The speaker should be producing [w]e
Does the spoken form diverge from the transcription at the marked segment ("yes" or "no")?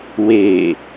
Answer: no